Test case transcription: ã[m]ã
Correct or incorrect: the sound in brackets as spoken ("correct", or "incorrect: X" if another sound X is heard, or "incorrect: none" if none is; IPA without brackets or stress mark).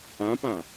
incorrect: p